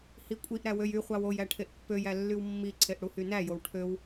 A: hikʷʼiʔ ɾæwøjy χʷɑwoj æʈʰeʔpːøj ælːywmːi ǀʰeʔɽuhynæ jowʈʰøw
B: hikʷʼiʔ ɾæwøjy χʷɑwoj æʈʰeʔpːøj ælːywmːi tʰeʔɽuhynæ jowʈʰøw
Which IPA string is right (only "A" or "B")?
A